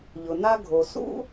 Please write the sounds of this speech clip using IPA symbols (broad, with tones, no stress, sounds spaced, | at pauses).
ʎ ʊ˩ n a˥ ɡʱ o˩ s ṵ˥